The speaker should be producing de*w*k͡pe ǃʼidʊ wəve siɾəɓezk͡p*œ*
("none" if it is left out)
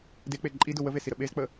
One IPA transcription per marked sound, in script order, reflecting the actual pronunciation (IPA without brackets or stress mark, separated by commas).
none, ə